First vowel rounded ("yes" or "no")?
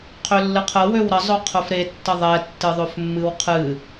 yes